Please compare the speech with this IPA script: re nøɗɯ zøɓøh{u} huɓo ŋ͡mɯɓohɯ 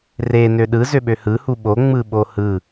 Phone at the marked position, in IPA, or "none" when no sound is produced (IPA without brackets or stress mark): ɯ